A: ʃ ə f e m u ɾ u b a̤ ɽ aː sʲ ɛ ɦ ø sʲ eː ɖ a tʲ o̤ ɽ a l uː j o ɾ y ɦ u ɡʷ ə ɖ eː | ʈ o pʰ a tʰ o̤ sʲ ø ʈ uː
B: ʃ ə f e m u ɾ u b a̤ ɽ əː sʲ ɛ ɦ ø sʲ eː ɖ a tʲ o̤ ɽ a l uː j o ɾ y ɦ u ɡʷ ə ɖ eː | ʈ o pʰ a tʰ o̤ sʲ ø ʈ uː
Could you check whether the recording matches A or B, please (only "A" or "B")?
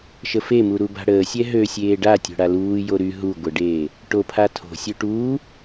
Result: B